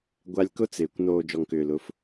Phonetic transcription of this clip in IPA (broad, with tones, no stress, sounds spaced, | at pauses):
ɡʷ a˦ lʲ k ʊ˦ t͡s ɪː˨ kʷ n oː˧ d͡ʒ ɔ˨ ŋ k ʏː˨ l ʊ˨˦ f